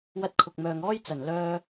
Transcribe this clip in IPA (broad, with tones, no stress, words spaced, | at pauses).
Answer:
wɐ˧t̚kʰʊ˨k̚mœː˨ŋɔː˥j t͡sɐ˨˩n lœː˧